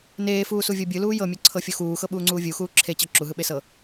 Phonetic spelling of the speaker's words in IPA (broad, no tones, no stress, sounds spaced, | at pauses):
n eː f uː s u vʲ ɤ bʲ ɯ l uː j ɤ mʲ ɤ ǀʰ ɤ fʲ o x uː x ɤ ɓ uː ŋ͡ǀ uː vʲ u x uː ǁʰ e t͡ɕ ɤ ǁ u ɦ ɯ ɓ e s ɤ